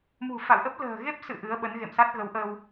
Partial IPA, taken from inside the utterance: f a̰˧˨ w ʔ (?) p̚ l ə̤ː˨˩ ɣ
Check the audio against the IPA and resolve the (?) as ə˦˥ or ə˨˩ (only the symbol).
ə˦˥